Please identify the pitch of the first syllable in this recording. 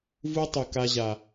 high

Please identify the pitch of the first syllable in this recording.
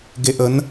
low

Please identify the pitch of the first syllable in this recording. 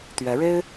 rising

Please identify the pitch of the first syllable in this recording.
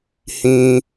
high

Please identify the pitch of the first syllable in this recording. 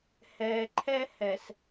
low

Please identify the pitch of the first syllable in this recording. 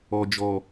low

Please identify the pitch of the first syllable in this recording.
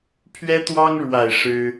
high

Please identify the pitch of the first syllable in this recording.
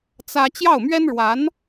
high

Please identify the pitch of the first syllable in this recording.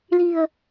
low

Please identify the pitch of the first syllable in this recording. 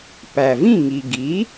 low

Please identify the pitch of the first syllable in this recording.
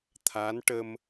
rising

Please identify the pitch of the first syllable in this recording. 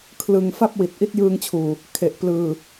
low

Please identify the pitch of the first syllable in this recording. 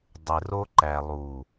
low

